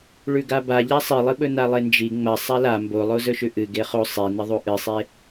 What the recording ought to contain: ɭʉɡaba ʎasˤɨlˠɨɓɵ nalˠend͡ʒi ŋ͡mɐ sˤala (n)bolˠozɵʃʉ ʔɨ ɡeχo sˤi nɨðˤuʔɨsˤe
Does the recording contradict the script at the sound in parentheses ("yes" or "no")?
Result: yes